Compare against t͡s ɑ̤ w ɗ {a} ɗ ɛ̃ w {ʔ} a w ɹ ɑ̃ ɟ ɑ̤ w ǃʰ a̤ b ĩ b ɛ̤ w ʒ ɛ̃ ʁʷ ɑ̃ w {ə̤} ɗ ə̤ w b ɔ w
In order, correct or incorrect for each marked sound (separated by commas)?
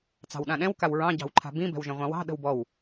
incorrect, incorrect, incorrect